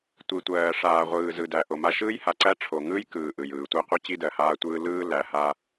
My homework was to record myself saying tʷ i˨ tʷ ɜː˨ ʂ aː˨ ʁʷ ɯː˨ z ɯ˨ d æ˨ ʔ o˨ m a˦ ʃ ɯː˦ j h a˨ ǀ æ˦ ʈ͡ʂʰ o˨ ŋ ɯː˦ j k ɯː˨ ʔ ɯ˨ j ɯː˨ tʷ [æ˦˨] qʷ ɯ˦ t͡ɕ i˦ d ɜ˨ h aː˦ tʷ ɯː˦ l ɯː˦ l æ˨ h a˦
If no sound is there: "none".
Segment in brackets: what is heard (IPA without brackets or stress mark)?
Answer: æ˦